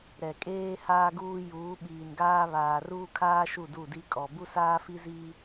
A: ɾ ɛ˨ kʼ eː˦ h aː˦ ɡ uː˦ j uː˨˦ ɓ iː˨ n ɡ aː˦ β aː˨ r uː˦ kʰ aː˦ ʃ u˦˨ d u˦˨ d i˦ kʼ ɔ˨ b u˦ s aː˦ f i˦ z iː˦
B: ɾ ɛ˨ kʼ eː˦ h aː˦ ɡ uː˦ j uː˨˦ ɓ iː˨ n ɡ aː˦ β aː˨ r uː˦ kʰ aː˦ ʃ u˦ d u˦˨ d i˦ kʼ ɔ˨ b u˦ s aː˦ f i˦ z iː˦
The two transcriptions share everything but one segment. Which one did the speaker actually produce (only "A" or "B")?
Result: A